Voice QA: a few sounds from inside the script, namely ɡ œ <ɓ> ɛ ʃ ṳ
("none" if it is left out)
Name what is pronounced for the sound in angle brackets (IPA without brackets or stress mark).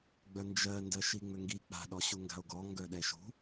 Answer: ɗ